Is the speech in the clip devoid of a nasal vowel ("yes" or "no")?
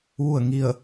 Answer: yes